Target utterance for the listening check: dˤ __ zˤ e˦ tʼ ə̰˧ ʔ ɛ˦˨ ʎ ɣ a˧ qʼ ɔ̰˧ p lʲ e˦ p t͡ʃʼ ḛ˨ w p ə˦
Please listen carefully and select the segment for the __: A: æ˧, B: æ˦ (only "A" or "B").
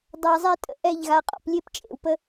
A